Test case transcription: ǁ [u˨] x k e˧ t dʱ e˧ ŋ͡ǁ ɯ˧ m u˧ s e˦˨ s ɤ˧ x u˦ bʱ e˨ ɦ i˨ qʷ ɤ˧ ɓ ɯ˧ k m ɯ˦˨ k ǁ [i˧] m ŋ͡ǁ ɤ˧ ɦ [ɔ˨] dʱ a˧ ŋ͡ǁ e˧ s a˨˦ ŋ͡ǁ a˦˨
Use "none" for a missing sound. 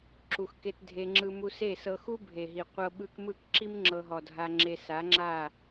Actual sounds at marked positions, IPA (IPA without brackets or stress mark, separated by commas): u˨, i˦, ɔ˨